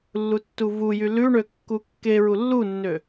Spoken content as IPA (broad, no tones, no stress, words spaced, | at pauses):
lːutːuvujy lʉɳø kːukːeɹu lːunːø